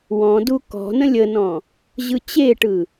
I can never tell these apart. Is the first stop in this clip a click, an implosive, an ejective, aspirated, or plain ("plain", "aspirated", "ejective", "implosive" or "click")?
plain